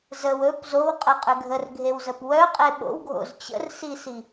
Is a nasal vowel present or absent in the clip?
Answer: absent